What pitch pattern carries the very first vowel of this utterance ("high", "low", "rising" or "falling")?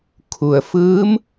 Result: low